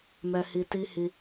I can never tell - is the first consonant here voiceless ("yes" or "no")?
no